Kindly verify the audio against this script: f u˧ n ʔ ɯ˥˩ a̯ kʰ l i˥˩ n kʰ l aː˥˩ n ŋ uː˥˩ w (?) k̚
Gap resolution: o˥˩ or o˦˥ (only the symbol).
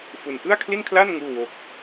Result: o˦˥